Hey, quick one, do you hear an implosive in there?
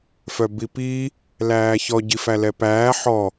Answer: no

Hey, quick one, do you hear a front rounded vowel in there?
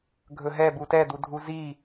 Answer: no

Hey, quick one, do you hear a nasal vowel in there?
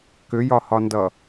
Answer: no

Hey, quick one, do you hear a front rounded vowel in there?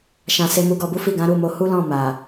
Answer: no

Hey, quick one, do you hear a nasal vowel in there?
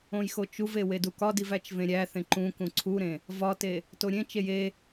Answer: yes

